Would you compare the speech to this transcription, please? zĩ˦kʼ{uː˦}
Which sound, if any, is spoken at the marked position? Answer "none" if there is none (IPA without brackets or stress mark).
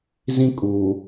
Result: uː˨